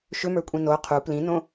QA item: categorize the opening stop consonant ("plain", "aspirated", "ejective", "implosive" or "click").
ejective